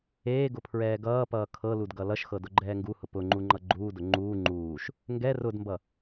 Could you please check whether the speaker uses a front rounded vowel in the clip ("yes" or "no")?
no